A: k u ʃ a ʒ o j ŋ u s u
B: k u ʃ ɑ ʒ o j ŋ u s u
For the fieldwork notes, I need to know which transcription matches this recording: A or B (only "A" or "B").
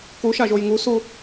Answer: A